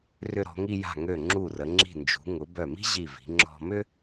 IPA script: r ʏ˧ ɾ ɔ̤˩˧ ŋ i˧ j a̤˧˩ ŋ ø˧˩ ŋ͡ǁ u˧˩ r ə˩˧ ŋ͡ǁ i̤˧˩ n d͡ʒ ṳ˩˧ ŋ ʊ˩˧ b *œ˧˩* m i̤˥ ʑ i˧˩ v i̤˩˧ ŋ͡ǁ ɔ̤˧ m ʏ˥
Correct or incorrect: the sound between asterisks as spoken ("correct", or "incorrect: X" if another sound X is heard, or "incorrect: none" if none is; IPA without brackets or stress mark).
correct